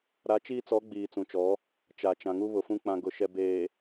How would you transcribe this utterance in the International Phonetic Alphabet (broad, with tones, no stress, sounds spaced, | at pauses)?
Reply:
ɾ a˨˦ t͡ʃ iː˦ t͡s ɔ˨˦ ɡ͡b iː˨ t͡s ũ˨ t͡ʃ ɔ˨˦ | t͡ʃ a˨ t͡ʃ ã˨ ŋ u˦ β ʊ˨ f ũ˦ k͡p ã˦ ɡ ʊ˦ ʃ ɛ˦ b eː˨